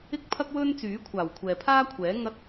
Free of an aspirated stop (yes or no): no